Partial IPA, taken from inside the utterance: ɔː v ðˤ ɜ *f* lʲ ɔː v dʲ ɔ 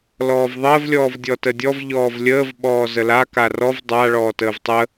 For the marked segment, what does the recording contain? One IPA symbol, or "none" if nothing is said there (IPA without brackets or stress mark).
v